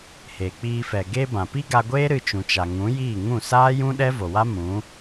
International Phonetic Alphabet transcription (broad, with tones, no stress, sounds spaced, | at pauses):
h e˨ k͡p iː˧ f ɛ˨ ɡ e˧ b ã˨ p i˦ ɡ a˧ ɡʷ eː˦ ɾ ɨ˧ t͡ʃ ũ˨ t͡ʃ a˨ ŋ ũ˨˦ j iː˦˨ ŋ ũ˦˨ s aː˦ j ũ˦ ɗ ɛ˦ v o˨ w a˦ m ũ˨˦